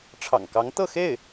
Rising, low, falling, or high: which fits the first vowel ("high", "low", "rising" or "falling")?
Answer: low